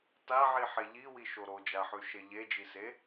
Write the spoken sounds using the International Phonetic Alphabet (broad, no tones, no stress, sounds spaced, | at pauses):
t a ʕ i ħ e ʎ i w i ʃ o ɾ o d͡ʒ a ħ ʉ ʃ e ʎ e d͡ʒ i s e